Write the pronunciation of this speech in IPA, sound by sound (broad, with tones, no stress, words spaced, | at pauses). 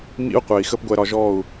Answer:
mḭ˦u̯qʷɛ˨i̯xə˦p ɡʷɛ˦ɾɒ˦ ʒɔ˦˨u̯